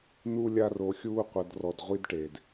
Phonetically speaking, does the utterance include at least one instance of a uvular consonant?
yes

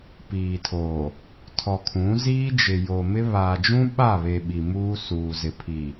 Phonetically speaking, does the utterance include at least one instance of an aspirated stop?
yes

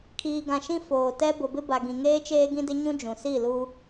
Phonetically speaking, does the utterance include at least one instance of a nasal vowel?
yes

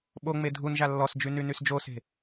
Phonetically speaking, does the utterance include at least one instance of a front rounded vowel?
yes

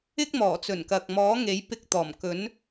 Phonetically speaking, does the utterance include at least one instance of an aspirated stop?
no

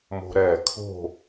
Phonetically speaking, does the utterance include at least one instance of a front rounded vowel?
no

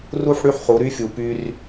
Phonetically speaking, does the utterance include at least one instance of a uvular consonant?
yes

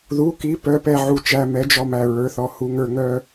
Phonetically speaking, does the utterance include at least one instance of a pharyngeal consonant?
yes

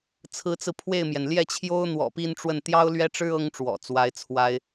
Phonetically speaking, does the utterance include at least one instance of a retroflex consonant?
yes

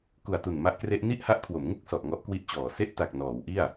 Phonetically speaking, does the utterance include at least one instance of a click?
no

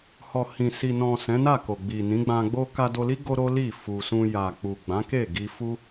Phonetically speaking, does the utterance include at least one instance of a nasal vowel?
yes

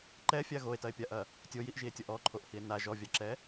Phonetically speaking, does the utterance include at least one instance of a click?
yes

